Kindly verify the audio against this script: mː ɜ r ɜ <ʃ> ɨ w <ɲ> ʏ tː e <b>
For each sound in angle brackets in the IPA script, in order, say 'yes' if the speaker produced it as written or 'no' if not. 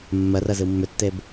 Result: no, no, yes

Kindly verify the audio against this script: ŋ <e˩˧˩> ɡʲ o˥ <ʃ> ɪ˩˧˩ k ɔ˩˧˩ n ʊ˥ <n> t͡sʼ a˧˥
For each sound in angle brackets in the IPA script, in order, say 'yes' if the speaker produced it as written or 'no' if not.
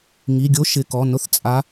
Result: no, yes, no

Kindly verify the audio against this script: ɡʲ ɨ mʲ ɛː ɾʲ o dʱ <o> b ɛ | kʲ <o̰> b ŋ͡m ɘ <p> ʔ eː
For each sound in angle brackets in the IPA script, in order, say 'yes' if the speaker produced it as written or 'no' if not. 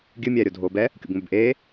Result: no, yes, no

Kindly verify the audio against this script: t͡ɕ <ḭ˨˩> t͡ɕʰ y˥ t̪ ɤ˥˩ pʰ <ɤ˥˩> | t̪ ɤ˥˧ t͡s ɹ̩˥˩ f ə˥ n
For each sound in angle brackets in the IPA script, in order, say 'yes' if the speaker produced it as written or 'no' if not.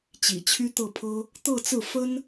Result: yes, no

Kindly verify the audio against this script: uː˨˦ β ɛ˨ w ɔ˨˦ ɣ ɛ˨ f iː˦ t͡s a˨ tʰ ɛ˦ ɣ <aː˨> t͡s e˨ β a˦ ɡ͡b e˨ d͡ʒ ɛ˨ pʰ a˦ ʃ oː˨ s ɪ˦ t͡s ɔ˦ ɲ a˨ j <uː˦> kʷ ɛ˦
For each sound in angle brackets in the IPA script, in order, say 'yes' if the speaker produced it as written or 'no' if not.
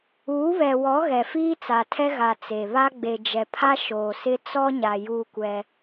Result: no, yes

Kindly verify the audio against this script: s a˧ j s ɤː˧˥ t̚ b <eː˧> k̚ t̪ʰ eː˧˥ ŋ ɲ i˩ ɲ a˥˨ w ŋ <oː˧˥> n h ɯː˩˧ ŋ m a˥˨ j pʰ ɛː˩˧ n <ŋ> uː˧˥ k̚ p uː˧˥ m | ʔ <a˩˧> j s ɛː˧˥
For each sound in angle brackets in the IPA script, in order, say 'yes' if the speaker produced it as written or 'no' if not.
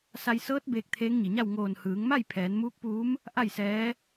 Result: yes, no, no, no

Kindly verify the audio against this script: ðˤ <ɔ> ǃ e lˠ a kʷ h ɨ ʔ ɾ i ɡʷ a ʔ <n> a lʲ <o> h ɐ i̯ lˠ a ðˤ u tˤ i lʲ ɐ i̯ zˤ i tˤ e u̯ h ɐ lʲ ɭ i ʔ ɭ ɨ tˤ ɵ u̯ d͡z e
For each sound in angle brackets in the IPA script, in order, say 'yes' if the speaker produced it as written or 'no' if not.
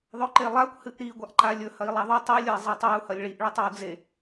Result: no, no, no

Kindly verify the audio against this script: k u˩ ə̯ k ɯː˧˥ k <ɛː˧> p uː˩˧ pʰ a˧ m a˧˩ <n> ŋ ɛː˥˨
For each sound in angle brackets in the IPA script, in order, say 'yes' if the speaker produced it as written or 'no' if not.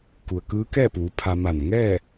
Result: no, yes

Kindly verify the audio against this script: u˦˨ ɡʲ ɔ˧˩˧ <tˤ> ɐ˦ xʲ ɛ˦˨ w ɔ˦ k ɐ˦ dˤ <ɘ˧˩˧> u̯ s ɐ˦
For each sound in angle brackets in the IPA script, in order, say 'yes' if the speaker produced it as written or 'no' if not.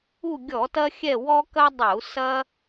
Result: no, yes

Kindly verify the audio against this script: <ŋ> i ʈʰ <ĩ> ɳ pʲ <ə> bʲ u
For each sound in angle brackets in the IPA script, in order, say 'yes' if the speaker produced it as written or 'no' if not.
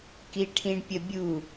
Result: no, yes, yes

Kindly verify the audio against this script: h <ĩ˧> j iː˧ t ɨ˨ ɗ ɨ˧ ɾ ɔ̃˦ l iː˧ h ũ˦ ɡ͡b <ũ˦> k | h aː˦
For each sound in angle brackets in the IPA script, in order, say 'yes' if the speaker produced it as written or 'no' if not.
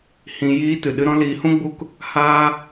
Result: yes, no

